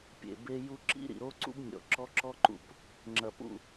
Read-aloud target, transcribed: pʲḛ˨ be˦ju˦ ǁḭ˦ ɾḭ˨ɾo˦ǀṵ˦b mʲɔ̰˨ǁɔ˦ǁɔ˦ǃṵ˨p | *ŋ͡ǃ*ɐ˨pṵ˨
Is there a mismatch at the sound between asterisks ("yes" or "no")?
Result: yes